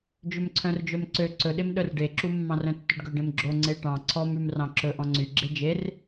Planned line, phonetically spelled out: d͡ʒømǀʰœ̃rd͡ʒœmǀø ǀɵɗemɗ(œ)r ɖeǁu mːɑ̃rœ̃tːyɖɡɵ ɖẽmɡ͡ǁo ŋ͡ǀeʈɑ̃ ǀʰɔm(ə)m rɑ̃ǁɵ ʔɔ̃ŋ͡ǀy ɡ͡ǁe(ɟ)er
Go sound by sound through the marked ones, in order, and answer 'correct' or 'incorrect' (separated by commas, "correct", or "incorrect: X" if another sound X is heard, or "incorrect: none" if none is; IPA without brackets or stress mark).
correct, incorrect: ʉ, incorrect: d͡ʒ